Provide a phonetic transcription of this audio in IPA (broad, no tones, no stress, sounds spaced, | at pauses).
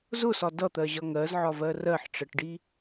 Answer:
z ʊ s ɒ d ʌ t̪ ɜ ʑ ʌ ŋ ɜ z ʕ ɒ v ɜ r ɜ ħ ʈ͡ʂ ɜ ʈ ɖ i